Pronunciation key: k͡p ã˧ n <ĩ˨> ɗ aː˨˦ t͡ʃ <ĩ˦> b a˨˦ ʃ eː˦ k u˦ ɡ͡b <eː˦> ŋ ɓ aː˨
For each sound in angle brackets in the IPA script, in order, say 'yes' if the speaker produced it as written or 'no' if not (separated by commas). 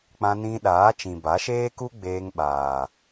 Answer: no, no, no